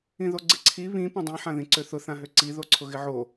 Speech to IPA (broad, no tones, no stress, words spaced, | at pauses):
ĩðoɡ͡ǀɪǀʰi βĩ põdˤĩħãðĩ ǀøθʊθãɦø ǀi ðoǀʰʊɣɪʕo